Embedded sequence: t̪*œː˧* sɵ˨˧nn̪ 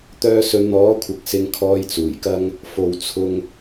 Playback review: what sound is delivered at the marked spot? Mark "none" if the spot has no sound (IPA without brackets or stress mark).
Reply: œː˧